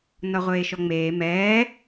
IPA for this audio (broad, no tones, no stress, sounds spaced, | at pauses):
n ɒ ʁʷ eː ʃ ɔ ŋ͡m eː m ɛː